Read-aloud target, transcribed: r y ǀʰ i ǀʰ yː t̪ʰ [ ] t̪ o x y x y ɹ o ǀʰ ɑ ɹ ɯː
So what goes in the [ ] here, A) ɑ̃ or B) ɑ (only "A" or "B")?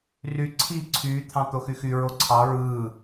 A